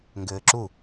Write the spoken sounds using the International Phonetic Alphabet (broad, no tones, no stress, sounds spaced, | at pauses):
ŋ ɡ ɘː ǁ u